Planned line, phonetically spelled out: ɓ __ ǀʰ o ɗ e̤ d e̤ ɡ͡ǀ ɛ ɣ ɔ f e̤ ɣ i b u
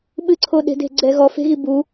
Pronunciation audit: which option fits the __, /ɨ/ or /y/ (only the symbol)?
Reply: ɨ